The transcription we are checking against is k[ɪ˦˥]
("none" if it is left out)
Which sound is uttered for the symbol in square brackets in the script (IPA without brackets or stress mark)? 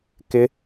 ɪ˦˥